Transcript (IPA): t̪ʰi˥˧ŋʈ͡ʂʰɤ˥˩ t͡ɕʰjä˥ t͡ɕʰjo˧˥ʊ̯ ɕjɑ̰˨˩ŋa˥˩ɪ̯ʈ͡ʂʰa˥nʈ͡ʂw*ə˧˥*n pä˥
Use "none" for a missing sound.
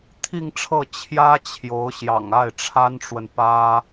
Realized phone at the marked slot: ə˨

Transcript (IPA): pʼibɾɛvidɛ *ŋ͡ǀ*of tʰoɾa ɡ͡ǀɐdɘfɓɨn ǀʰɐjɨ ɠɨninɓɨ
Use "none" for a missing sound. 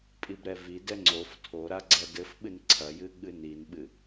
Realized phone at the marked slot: ŋ͡ǀ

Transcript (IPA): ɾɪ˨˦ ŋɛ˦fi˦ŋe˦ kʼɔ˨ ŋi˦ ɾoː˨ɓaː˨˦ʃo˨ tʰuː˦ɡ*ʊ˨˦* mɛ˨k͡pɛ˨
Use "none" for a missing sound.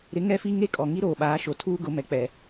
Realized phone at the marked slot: ʊ˨˦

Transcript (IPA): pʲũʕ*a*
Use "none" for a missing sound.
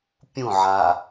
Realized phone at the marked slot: a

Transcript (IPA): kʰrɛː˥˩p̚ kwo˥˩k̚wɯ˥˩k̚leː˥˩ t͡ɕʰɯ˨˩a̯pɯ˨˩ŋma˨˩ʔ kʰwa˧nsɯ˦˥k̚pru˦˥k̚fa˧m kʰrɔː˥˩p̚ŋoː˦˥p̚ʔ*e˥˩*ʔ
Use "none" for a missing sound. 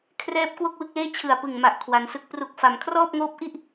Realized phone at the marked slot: i˥˩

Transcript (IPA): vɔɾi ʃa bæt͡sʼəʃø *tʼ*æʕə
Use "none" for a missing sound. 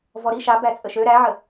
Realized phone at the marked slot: ɾ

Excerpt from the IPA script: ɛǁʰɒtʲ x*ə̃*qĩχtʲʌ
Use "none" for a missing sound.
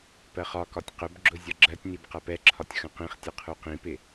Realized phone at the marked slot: ə̃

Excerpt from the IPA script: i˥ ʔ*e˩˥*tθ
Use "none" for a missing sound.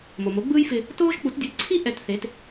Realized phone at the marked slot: ɛ˩˥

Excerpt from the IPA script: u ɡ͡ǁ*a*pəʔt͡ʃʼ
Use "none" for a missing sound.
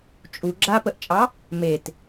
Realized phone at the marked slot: a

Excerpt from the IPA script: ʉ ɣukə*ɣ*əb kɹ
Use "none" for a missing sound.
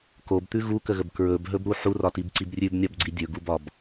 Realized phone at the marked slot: ɣ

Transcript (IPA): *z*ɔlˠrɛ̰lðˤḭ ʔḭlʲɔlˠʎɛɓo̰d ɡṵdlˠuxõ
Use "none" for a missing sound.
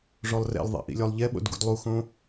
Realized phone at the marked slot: ʐ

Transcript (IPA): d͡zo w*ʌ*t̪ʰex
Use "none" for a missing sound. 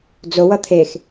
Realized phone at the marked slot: ʌ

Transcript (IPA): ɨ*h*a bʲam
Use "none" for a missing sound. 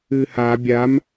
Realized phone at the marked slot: h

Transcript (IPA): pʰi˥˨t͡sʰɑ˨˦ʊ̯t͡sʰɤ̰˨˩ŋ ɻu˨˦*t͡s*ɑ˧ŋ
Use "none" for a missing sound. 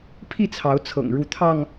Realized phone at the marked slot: t̪ʰ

